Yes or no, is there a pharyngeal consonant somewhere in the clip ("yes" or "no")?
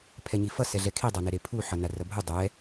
yes